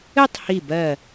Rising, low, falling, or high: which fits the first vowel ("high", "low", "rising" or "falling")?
falling